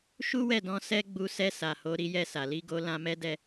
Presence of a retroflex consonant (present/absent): absent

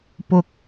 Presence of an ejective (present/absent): absent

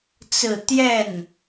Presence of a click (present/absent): absent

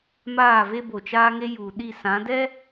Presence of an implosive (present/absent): present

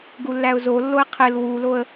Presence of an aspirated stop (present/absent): present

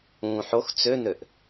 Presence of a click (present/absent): absent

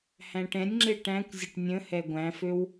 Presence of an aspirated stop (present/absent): absent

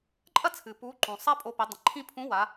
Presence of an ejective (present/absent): present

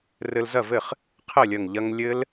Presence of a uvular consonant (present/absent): present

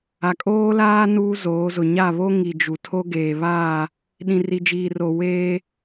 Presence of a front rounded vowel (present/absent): absent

